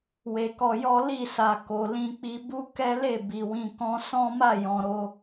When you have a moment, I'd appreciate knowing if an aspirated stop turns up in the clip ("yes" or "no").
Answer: no